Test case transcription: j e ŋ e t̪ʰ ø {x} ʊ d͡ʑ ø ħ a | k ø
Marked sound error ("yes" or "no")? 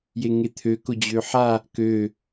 yes